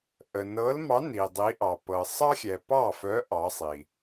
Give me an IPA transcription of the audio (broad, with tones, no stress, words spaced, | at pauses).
ʔə˨nɤ˧˥lmɑ˧˥ ni˨dˤi˧˥ʔɑ˨ pɤ˨ sˤɑ˥xʲɛ˨pɑ˥˨fœ˧˥ ʔɑ˧˥sˤi˨